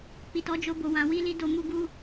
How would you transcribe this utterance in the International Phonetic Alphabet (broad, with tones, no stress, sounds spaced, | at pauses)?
k͡p i˨ t ɔ˨˦ d͡ʒ o˧ b o˨ w ã˧ w i˦ l i˦ d o˧ m u˧ ɡ u˧